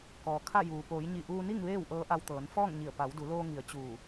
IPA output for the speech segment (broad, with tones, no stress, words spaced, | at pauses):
kɔː˩kʰa˥˨juː˩ poː˩˧jɲi˧˩ʔuː˧ni˥˨ŋ ʋeː˥˨wʔɤː˧˥ʔa˧wt̪ɤː˩˧n fɔː˥˨ŋɲi˧˩ə̯ pa˩˧wdu˩˧loː˧ŋi˩˧ə̯ t͡ɕuː˧˩